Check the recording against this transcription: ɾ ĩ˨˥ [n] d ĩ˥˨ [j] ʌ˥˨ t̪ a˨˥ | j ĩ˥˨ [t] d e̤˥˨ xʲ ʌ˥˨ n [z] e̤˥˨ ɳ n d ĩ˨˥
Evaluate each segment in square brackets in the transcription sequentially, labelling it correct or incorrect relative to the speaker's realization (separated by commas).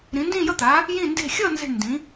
correct, correct, incorrect, correct